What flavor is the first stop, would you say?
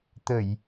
plain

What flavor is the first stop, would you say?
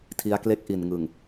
aspirated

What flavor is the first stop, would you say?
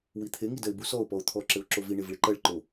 aspirated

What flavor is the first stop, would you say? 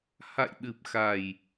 implosive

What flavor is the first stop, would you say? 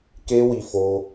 plain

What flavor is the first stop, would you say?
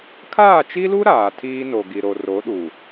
aspirated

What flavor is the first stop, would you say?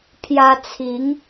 aspirated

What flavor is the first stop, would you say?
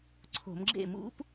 click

